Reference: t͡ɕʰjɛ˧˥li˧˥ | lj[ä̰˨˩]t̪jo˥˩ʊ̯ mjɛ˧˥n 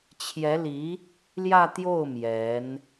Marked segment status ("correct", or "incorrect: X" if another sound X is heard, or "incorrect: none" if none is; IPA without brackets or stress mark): incorrect: ä˥˧